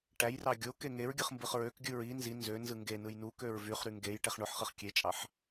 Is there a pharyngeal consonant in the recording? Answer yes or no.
yes